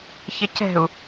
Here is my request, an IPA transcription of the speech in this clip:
ç ɪ c ɛ̤ u̯

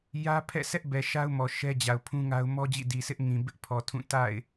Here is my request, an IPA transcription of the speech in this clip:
j ä˦ pʰ ɛ̰˦˨ s ɛ˦ ʔ b ɛ˨ ʃ a˦ ʊ̯ m ɔ˨ ʃ ɛ˦ d͡ʑ a˨ ʊ̯ pʰ ũ˦ ŋ a˦ ʊ̯ m ɔ˦ d͡ʑ ḭ˦˨ d i˨ s ɪ˦ ʔ ŋ ĩ˨ b ɪ˦ ʔ pʰ ɔ˨ tʰ ũ˦˨ t a̰˦˨ ɪ̯

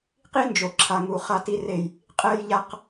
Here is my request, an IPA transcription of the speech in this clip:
q i˦ n d͡ʒ o˨ ǁʰ a˨ ŋ u˨ χ a˦ t i˦ r e˦˨ j | qʼ ɛ˦ j ʎ a˦ q

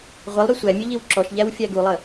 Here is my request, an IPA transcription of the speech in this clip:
ʁʷ ə lˠ ɾ y sʷ æ mʲ ʉ ʎ i w ǁ ɔ ʃ ʎ æ w fʲ æ ɡ u lˠ ə

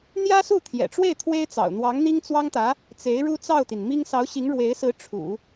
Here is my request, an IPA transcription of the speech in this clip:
n̪ j ä˥ s u˥˩ t̪ʰ j ɛ̰˨˩ ʈ͡ʂ w e˥˩ ɪ̯ t̪ʰ w e˥ ɪ̯ t͡s ɑ̰˨˩ ʊ̯ n̪ w ɑ˧˥ ŋ n̪ i˥ ŋ t͡s w ɑ˥ ŋ t̪ ä˧˥ | t͡s e˧˥ ɪ̯ ɻ u˥ t͡s ɑ˥˩ ʊ̯ t̪ i˩ n m i˥ ŋ s ɑ˧˥ ʊ̯ ɕ i˧˥ ŋ ɻ w e˧˥ ɪ̯ s ɹ̩˧˥ ʈ͡ʂʰ ṵ˨˩˦

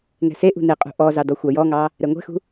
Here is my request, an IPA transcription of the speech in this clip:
ŋ ɛ̤ s e ʔ ṳ n e qʼ ṳ ʔ ɔ z ɑ d ɔ xʷ ɑ j ɔ ŋ ɑ | ɾ ɛ ŋʷ ɛ̤ x ṳ

